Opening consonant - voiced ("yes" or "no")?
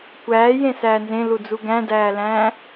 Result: no